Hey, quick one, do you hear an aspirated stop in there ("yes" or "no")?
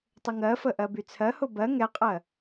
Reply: yes